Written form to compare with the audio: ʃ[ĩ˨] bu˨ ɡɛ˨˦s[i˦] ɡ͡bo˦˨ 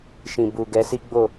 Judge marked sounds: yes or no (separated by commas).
yes, yes